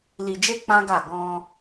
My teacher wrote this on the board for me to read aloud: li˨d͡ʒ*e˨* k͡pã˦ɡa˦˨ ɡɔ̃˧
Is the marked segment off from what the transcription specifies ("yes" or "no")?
yes